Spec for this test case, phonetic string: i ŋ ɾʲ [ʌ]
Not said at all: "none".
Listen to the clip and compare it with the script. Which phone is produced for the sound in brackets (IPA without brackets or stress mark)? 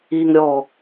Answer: ɔ